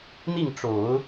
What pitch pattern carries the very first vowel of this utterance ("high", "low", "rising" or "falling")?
falling